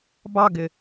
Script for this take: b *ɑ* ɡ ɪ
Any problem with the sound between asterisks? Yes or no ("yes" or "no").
no